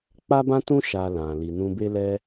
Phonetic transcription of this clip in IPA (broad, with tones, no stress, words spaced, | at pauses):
k͡pa˦bã˦tũ˦ ʃa˧lã˨ li˨nũ˧be˦lɛ˦